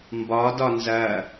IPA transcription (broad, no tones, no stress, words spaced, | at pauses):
mbɒ dɒnzɐ